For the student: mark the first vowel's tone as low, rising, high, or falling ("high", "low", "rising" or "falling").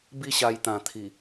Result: falling